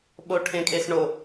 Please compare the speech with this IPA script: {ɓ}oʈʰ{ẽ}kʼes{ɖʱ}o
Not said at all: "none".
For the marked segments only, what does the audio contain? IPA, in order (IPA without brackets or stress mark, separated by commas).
ɓ, ẽ, ɳ